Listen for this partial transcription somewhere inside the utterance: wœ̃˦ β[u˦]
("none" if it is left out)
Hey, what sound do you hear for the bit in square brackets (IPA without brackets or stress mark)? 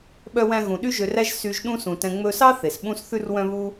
u˦